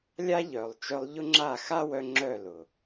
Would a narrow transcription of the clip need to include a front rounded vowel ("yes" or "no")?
yes